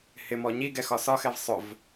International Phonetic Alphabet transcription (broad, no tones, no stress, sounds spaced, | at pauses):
h ɪ m ɔ ɲ i ɡ ɛ x ɒ s ɒ x ɛ v sˤ ʊ v